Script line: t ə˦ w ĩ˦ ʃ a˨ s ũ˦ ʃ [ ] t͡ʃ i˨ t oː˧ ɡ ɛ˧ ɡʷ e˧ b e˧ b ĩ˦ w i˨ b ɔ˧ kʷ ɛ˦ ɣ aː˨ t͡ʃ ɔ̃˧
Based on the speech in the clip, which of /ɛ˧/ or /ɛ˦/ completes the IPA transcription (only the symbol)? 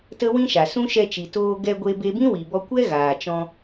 ɛ˧